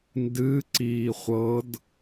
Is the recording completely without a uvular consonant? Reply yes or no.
no